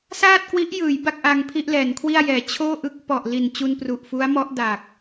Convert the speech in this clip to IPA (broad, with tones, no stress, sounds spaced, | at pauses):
s aː˥˩ t̚ k w i˦˥ ʔ j ɯː˩˦ j b a˥˩ k̚ ʔ aː˧ ŋ pʰ i˥˩ ʔ l ɛː˩˦ n kʰ w i˥˩ a̯ j ɛː˩˦ t͡ɕʰ oː˥˩ ʔ ɯ˥˩ k̚ p ɔ˨˩ ʔ l i˨˩ n t͡ɕ u˧ n p r u˨˩ ʔ f u˦˥ a̯ m ɔ˦˥ ʔ d a˨˩ k̚